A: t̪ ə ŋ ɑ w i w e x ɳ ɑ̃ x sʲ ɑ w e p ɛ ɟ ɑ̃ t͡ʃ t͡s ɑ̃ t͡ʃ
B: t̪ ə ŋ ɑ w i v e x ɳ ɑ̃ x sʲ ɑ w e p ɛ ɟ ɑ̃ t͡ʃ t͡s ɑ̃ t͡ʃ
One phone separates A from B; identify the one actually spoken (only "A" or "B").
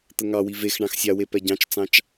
B